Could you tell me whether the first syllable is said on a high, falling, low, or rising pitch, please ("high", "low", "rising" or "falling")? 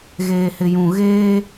low